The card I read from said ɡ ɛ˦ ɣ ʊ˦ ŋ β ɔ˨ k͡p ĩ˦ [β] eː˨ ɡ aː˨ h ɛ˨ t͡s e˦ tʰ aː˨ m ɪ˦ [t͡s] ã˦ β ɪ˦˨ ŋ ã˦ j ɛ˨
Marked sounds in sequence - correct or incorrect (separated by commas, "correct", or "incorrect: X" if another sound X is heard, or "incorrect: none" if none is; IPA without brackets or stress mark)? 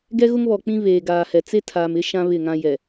correct, incorrect: ʃ